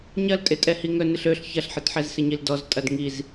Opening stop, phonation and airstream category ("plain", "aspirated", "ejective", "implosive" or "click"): ejective